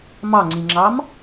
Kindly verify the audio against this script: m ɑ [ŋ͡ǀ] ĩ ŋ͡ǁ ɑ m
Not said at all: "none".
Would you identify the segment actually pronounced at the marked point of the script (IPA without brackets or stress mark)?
ŋ͡ǀ